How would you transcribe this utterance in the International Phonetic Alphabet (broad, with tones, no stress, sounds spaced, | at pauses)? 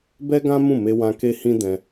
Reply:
b ɛ˦ ɡ ã˦ m ũ˦˨ m e˧ w ã˧ k e˦ h ĩ˦ d ɛ̃˧